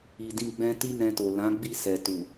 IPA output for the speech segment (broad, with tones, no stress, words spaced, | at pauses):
i˧dĩ˦ɡ͡bɛ̃˦ ti˦nɛ̃˧to˨lã˨˦ ɡ͡bi˦˨ sɛ˨tu˨